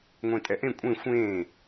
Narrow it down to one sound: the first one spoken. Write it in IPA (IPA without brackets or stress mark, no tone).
ŋʷ